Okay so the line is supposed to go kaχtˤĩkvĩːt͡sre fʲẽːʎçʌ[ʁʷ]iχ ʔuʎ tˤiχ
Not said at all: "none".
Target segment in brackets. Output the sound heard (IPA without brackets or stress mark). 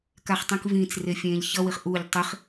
w